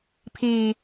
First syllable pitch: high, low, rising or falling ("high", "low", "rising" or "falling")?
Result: low